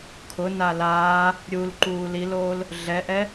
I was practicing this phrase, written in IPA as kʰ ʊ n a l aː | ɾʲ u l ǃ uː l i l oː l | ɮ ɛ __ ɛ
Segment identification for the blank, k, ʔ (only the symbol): ʔ